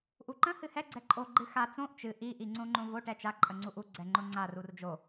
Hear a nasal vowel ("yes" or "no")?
yes